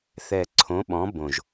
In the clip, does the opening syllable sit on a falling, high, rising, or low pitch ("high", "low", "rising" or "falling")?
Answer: low